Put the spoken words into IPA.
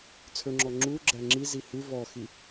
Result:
t͡sʰ ɵ ŋ͡ǁ ɔ ŋ͡ǁ u ɡ͡ǁ æ ŋ͡ǁ i z i h ʉ v ɔ x i

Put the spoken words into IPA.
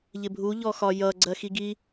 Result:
ʎ ɪ bʱ u ʎ ɔ x ɒ j ʌ ɡ͡ǀ ɜ x i ɡ i

